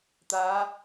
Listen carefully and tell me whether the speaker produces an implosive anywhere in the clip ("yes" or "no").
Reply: no